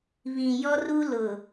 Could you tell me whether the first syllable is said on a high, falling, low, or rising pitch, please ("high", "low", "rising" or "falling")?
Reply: low